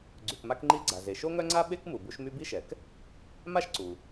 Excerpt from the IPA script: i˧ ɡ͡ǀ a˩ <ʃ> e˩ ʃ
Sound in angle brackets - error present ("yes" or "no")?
yes